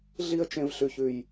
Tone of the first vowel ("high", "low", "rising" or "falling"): high